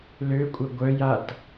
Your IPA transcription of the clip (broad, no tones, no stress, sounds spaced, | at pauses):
l ø kʷʼ œ ɡʷ œ j a t